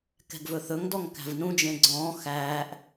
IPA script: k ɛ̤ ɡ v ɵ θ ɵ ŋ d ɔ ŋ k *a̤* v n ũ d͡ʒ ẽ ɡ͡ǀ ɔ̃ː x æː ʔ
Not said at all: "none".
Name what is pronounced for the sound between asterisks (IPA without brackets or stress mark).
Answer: æ̤